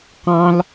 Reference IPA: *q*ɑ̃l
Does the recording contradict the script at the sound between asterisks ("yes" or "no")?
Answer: no